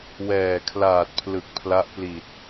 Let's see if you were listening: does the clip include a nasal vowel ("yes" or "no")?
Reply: no